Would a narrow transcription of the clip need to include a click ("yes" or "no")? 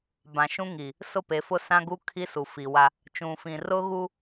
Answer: no